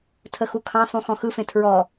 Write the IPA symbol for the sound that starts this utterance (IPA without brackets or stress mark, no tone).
tʰ